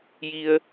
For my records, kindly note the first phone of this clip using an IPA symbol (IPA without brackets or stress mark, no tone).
j